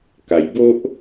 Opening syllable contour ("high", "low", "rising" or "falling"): low